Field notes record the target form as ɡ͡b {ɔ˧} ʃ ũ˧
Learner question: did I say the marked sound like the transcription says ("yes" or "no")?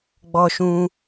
yes